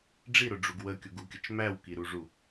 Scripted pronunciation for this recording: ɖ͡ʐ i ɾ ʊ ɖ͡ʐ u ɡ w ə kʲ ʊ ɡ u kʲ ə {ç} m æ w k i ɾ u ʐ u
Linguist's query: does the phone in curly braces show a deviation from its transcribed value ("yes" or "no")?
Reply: yes